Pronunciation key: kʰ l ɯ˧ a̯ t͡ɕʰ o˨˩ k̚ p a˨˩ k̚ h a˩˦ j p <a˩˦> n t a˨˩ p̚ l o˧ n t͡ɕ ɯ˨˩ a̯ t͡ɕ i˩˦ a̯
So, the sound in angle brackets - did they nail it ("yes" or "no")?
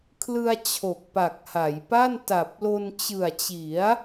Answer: no